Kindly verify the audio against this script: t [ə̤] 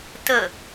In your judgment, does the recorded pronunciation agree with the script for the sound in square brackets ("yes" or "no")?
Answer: no